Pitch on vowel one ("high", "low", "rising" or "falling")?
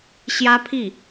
high